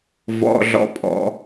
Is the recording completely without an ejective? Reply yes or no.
no